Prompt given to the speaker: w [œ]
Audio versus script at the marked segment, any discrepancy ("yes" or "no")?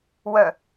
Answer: no